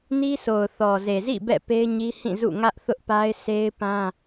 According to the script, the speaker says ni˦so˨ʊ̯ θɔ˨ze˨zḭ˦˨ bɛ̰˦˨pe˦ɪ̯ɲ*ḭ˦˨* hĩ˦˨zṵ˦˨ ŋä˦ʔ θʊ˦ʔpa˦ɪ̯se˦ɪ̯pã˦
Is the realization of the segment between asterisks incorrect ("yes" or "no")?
yes